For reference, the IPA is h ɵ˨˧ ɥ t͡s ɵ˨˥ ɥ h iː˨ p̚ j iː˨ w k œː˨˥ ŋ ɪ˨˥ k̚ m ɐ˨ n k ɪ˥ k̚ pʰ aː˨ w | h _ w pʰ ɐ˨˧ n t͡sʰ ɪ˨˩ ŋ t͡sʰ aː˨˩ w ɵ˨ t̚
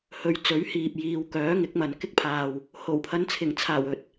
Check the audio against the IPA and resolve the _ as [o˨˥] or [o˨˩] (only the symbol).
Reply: o˨˩